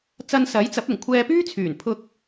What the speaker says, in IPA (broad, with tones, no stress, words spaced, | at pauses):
t͡sɐ˧nsɐ˨˥jt͡sɐ˨˥p̚ ʊ˨˩ŋkʷʰɛː˧pyː˥t͡sʰyː˨˩n pʰʊ˧k̚